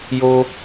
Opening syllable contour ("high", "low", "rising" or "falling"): high